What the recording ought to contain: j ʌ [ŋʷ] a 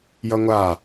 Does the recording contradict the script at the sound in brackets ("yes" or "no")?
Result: no